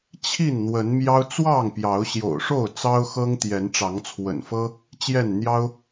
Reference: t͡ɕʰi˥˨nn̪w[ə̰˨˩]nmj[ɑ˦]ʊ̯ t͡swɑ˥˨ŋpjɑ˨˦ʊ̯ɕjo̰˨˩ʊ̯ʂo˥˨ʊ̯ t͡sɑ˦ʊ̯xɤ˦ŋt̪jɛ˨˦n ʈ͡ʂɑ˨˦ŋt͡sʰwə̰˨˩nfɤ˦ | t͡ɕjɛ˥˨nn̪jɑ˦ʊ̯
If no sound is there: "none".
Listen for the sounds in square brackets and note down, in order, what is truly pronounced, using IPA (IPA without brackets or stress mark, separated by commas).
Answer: ə˨˦, ɑ˦